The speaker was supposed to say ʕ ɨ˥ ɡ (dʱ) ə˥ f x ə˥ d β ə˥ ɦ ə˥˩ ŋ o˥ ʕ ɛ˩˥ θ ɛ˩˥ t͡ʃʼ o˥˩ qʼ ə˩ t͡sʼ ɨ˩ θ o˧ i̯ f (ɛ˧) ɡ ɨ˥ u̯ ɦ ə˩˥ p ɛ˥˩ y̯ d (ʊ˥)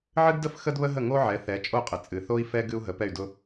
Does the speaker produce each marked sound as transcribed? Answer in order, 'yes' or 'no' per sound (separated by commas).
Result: no, yes, yes